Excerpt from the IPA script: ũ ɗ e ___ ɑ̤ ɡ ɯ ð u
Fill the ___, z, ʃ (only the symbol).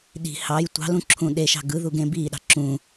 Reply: ʃ